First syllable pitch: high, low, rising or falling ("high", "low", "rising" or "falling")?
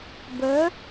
rising